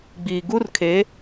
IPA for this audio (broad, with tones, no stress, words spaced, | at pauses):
ɡ͡biː˨ ɡu˦rkʰe˨˦